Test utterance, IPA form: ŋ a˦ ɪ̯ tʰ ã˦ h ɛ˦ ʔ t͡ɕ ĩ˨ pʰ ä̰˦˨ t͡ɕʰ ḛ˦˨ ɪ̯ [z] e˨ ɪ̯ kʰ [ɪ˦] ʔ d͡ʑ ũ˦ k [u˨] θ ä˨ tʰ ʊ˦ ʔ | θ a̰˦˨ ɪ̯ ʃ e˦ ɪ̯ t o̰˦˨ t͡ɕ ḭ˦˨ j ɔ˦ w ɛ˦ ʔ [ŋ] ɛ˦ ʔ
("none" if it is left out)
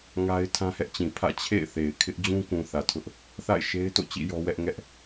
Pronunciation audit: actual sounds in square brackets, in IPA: θ, ɪ˦, ũ˨, ŋ

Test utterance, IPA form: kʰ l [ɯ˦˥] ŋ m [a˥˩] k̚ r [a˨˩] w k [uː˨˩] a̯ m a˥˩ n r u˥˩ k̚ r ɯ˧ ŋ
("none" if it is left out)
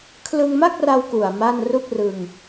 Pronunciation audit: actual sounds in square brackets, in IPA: ɯ˧, a˥˩, a˧, u˨˩

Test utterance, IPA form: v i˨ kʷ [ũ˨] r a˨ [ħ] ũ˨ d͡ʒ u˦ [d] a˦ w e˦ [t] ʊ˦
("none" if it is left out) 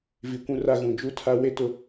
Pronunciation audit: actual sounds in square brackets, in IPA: ũ˨, ɣ, tʰ, t

